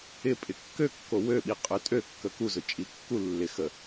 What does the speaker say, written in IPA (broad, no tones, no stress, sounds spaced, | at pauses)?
ɪ pʼ ɪ kː ø kː o w ø ɓ i qʼ ø tʼ ø kː ə k u z ʊ t͡ʃʼ i kː u lː ɪ x ə